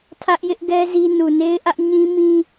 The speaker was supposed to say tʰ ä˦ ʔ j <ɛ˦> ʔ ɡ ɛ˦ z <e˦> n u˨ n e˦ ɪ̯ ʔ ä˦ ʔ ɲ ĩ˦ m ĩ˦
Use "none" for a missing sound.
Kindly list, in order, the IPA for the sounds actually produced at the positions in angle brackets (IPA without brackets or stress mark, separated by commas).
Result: ɪ˦, i˦